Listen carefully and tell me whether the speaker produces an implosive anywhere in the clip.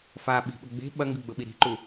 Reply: yes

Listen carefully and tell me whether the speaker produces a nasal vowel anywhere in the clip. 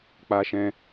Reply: yes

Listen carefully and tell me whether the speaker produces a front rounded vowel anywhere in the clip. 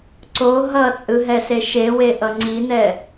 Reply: no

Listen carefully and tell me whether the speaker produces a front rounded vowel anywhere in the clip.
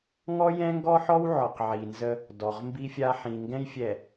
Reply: no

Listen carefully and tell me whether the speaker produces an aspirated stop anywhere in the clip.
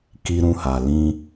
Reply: no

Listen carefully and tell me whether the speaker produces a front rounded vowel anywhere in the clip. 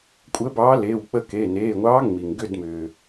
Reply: yes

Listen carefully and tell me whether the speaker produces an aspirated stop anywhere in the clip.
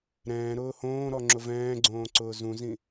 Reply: no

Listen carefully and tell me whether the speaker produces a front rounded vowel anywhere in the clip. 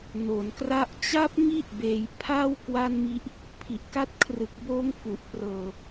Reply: no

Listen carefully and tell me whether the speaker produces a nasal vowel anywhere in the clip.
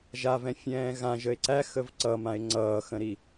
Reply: yes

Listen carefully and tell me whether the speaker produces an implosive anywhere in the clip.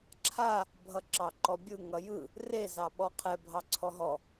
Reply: yes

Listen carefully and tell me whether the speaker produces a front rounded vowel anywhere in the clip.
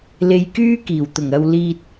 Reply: yes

